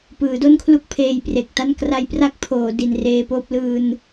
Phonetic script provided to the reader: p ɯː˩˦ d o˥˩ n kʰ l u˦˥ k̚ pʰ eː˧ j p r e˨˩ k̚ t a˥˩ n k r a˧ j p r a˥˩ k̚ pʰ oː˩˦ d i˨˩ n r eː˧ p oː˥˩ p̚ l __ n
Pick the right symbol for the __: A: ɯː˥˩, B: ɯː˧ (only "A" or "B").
B